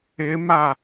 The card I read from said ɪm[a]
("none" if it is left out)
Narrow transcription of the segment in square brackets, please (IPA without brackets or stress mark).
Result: a